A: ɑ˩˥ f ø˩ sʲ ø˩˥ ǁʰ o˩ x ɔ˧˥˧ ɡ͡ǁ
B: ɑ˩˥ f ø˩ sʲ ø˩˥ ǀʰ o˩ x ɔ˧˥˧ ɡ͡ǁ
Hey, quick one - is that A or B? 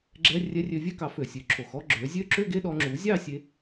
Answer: A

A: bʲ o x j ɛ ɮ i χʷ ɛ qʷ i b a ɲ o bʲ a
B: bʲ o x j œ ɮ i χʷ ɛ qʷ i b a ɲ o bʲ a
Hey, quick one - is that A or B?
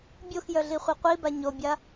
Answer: B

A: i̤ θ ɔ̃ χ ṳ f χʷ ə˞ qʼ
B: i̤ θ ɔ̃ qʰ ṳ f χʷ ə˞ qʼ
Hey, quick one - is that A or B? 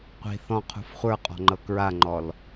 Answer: B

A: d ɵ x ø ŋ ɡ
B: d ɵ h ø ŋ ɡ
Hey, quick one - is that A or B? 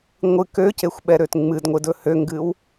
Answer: B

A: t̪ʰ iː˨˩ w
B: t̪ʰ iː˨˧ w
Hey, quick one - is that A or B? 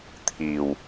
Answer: A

